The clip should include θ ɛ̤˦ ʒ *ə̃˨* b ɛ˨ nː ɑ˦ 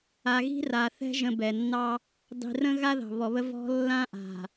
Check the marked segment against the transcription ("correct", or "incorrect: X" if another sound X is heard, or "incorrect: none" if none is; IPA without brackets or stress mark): correct